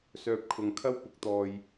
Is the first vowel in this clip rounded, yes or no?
yes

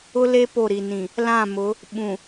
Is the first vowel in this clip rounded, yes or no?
yes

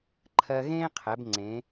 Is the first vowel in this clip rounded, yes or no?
no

